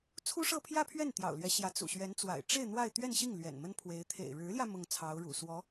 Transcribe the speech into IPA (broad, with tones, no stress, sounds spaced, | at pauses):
t͡sʰ u˥ ʂ ɤ˥˧ pʰ j ä˥˧ pʰ ɥ ɛ˥˩ n t̪ j ɑ̰˨˩ ʊ̯ l ɥ ɛ˧˥ ɕ j ä˧˥ t͡s ṵ˨˩ ɕ ɥ ɛ˧˥ n t͡s w a̰˨˩ ɪ̯ ʈ͡ʂ e˥˧ ɪ̯ n̪ w a˥˧ ɪ̯ t̪ ɥ ɛ˥˧ n ɕ i˥˩ ŋ l ɥ ɛ̰˨˩ n m ə˥ n pʰ w e˧˥ ɪ̯ t̪ʰ ḛ˨˩ ɪ̯ ɻ ɻ̩˧˥ l j ä˧ m ʊ˥˩ ŋ t͡sʰ ɑ˧˥ ʊ̯ ɻ ṵ˨˩ s w ɔ˧˥